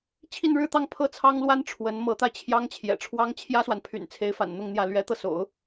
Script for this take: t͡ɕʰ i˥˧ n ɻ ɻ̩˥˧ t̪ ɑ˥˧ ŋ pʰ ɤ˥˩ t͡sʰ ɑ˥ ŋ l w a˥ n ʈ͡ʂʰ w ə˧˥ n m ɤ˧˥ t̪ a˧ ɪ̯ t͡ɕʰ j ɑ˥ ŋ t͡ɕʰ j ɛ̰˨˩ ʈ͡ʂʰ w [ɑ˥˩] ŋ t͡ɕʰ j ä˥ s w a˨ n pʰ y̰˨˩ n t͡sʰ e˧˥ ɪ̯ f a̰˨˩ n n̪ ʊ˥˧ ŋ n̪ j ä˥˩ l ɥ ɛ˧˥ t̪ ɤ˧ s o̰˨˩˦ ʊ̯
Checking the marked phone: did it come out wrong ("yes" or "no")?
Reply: yes